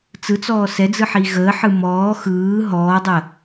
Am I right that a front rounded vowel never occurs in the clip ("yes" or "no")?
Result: yes